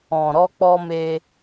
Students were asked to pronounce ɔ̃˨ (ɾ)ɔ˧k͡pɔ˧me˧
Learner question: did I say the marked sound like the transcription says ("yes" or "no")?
yes